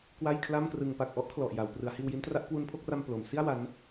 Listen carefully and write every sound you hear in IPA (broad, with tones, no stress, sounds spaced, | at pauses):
k w a˥˩ j kʰ l a˥˩ m k r ɯ˧ ŋ p a˨˩ k̚ ʔ ɔ˥˩ ʔ kʰ l ɔ˨˩ ʔ j a˩˦ w p r ɯ˩˦ a̯ h iː˧ w j i˦˥ n t r a˦˥ ʔ k w u˦˥ n pʰ o˦˥ k̚ r a˧ m p l o˩˦ m s i˥˩ a̯ w a˦˥ n